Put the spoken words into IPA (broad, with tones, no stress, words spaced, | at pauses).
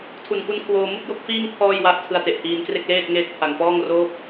tʰu˨˩nku˦˥nkʰwoː˧ mu˥˩k̚jo˥˩k̚fiː˥˩ŋ pʰɔː˥˩jwa˥˩ʔ tʰɯ˧a̯te˨˩ʔhiː˧nkre˥˩k̚ leː˥˩t̚ŋeː˦˥t̚pʰa˨˩ŋ pɔː˥˩ŋroː˥˩p̚